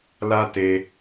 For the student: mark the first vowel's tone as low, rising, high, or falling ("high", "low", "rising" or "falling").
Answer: high